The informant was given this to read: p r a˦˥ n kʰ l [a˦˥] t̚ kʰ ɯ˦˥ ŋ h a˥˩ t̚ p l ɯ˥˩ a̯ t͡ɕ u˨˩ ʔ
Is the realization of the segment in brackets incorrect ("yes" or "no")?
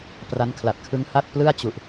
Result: yes